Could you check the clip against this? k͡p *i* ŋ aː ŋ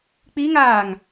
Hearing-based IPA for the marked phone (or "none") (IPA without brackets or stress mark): i